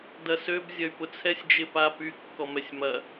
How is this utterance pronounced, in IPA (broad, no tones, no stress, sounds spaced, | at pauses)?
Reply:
d ɐ s ø b zʲ ɐ y̯ p ʊ t͡sʰ ɛ sʲ d͡ʒ ɪ p a p y kː ɔ m ɛ sʲ m ɐ